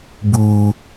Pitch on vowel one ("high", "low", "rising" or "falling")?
low